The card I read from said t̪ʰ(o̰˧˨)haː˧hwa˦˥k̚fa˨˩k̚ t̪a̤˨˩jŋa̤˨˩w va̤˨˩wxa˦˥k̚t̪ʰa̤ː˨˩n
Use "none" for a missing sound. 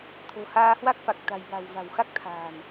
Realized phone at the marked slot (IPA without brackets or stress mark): o̤˨˩